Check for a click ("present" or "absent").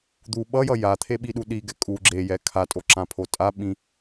present